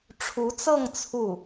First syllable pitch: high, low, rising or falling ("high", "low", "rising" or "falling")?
rising